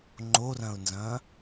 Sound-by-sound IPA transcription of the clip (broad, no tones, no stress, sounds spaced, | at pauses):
ŋ͡ǃ o r ɐ̃ ʊ̯ n z ɐ̃ː